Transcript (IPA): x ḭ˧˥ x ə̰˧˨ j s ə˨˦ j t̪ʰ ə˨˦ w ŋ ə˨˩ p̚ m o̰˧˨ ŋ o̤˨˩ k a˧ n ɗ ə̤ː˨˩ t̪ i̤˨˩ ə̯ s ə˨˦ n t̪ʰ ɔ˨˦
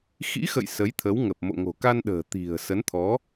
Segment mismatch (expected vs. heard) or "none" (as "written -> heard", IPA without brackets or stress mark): none